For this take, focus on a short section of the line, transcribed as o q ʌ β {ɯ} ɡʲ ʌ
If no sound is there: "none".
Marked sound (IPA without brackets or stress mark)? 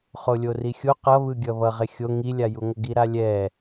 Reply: ɯ